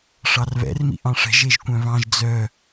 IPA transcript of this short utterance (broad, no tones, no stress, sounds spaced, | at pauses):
ʂ ɑ r β ɛ̰ r m ḭ ʔ ɑ̃ ʂ ɛ̤ ʒ e ʒ kʷ œ̃ β ɑ̃ ʒ d͡z œ